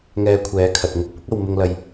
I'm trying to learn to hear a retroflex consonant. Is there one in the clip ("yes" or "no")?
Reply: no